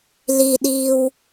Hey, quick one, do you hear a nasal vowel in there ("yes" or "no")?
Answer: no